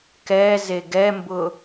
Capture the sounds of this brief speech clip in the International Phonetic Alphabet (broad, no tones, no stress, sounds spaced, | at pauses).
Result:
k ɛ z e ɡ ɛ m b ʊ